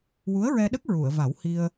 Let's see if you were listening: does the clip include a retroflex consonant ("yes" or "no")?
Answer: no